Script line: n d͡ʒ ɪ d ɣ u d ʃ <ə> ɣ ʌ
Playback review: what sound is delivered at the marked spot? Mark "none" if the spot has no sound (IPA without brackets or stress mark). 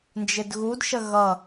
ə